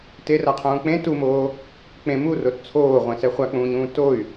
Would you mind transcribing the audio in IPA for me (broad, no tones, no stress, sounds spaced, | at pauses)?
t e r a qʰ ũː k͡p ẽ t u m oː | k͡p ẽ m u r o t t͡sʰ oː ʁʷ ẽ s ɛ χʷ a k͡p ũː ɲ ũː t o y̯